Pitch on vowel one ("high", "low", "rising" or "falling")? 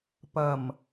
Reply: low